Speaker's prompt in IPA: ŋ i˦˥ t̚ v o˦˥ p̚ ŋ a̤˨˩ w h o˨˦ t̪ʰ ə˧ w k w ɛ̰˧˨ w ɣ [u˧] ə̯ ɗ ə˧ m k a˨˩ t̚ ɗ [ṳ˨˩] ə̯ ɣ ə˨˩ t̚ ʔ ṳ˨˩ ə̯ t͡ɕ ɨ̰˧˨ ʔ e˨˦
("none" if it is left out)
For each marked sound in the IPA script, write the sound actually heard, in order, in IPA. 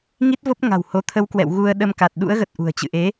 u˧, ṵ˧˥

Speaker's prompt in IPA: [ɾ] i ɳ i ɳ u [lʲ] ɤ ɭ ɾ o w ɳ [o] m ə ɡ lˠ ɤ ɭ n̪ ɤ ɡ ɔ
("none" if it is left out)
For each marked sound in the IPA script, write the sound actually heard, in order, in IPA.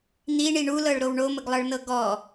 n̪, l, o

